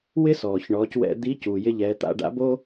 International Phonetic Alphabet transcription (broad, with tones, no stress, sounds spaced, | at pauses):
w ɪ˥ s ɔː˩ ç ɳ ɔː˩˧ c w ɛ̰˧ d̪ i˧˥ c u˩ j ɪ˧ ʎ ɛ˩˧ t̪ a̰˧ ɖ a̰˧˥ b o˥